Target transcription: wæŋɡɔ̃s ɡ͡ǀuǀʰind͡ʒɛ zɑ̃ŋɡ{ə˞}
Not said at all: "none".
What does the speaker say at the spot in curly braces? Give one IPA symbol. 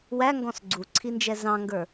ə˞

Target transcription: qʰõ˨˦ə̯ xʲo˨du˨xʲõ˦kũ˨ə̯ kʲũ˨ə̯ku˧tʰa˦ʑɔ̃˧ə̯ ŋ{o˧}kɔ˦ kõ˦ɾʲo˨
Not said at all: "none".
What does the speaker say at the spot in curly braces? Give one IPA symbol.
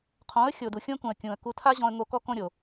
o˧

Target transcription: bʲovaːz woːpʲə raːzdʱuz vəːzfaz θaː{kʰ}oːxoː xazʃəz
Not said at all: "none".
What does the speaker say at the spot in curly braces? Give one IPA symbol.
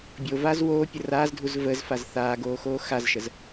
ɡ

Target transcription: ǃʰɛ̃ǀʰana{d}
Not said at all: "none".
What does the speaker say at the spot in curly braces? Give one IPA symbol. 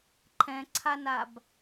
b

